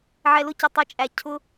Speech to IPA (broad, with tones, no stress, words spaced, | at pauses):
ʕɛ˧lʊ˦cʌ˨ tˤɛ˦t͡ʃʼæ˧ cʰʊ˦